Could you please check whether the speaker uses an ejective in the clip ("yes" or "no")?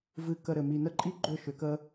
yes